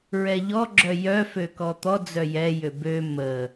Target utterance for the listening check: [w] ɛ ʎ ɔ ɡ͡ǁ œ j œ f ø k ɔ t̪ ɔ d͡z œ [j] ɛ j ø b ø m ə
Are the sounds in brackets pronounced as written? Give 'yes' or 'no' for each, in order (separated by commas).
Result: no, yes